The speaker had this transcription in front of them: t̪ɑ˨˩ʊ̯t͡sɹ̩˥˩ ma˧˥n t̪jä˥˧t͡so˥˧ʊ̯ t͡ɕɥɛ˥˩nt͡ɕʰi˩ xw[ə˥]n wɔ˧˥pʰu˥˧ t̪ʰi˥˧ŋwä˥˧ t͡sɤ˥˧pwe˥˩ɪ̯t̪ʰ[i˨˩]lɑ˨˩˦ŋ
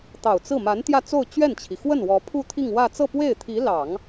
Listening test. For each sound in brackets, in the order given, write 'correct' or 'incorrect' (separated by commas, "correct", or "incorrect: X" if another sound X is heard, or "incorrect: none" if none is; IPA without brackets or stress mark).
incorrect: ə˥˩, incorrect: i˧˥